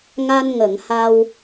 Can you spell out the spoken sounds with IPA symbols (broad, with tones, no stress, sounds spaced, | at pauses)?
ŋ a˧ n ŋ ə˨˩˨ ŋ h a˧ w